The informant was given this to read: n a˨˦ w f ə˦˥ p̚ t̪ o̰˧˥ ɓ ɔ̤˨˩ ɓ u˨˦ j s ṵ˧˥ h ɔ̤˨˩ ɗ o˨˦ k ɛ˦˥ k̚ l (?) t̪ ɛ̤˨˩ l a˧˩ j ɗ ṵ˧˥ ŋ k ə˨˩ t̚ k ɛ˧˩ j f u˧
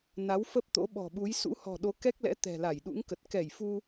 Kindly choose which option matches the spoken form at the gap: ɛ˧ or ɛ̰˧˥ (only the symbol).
ɛ̰˧˥